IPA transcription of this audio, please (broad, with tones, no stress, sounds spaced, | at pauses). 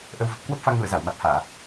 ʔ ə˧ w v ə˨˩ p̚ k w ə˦˥ p̚ f a˧ ŋ l ṵ˧˨ ə̯ z a˧˩ w m a˨˩ t̚ h aː˧˩˨